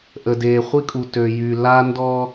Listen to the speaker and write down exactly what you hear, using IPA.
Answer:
ʔ ə˨ d eː˨ χʷ i˦ kʼ u˨ t ø˨ j y˨ l a˦ n d ɔ˦

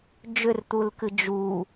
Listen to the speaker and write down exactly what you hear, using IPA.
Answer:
d͡ʒ ʏ r t̪ u l k ɨ d͡ʒ u

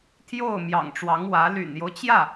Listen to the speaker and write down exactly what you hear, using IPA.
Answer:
t̪ʰ j o˥˩ ʊ̯ m j ɑ̰˨˩ ŋ ʈ͡ʂ w ɑ˧˥ ŋ w ä˧˥ l y̰˨˩ n j o˦ ʊ̯ t͡ɕ j ä˥˩

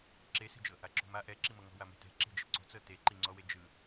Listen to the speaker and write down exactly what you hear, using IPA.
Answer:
ǁ e s e̤ d͡ʒ ɤ | a ǁ ṳ m a ʔ ɛ ǁ i m ɤ ŋ ɔ̤ w a m ɛ̤ t ɛ̤ ǁ e̤ d͡ʒ e̤ ǀ o̤ t͡s ɤ t e ǃ i ŋ͡ǀ ɔ w e d͡ʒ ɯ

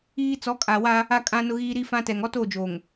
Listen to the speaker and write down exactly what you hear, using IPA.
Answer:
iː˦ t͡s ɔ˨˦ kʼ a˨ w a˦ | a˦ kʼ ã˦ n ʊ˦ ɣ iː˦ ɾ i˦ f ã˦ t ɛ˨ ŋ ɔ˦ t oː˦˨ d͡ʒ oː˨ ŋ

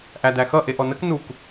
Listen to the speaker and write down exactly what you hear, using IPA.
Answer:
ʔ æ d æ x ʌ ʔ e ʔ ɔ n ə k n u k

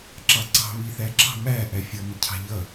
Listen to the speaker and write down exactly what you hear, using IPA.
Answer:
ǁ ɑ ǀ ɑ̤ β i θ æ ǁ ɑ̤ m æ ʔ æ fʲ ʌ m ɪ cʰ ɑ̤ ʎ ʌ

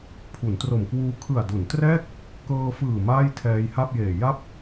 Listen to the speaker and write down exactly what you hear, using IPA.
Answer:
pʰ u˩˦ n t r o˨˩ m k w uː˧ kʰ ɯ˨˩ a̯ d u˩˦ n t r ɛː˥˩ k̚ | k ɤː˧ f ɯː˨˩ m aː˥˩ j tʰ ɛː˧ j h a˥˩ p̚ j eː˨˩ j a˥˩ p̚

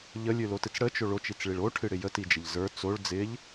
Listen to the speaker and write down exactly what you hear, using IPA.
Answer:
ʎ ə lʲ ɨ l o t ɨ t͡s ɽ ə t͡ʃ o ɭ o t͡ʃ i t͡s ɭ i ɭ o ʈʰ ɨ ɽ ɪ j ə t i d͡ʒ ɪ ʎ z ə˞ t͡s o ɭ d͡z ɪ ʎ

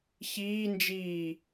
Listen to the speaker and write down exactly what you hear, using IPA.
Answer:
ç iː n d͡ʒ iː

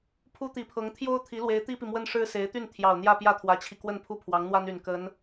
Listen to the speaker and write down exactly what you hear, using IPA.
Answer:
pʰ u˥ t̪ i˨˩ pʰ ɤ˧˥ ŋ t̪ʰ j o˥ ʊ̯ t̪ʰ i˧˥ l w e˧˥ ɪ̯ t̪ i˥ p i˨ m w ə˥ n ʂ ɻ̩˥ s e˧˥ ɪ̯ t̪ y˥˩ n t̪ʰ j ɑ˨˩ ʊ̯ n̪ j ä˥˧ p j ä˥˩ t̪ʰ w ä˧˥ t͡ɕʰ i˧ k w ə˥˧ n pʰ u˥˩ pʰ w ɑ˧˥ ŋ n̪ w a˥ n y˨˩ n k ə˧˥ n

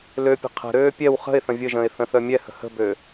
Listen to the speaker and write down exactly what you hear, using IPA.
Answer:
l ø pʲ ə̤ qʰ ə̤ ɾ øː pʲ ɛ w χ ə̤ ɪ̯ θ ə̃ vʲ ə ʒ ə̃ː ɪ̯ θ ə̃ θ œ mʲ ɛ h ə̤ h ə̤ b ø

